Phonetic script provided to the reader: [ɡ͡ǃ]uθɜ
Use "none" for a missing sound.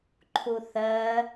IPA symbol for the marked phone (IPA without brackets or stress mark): ǃʰ